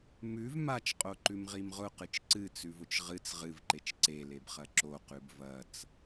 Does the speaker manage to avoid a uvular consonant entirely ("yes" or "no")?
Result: no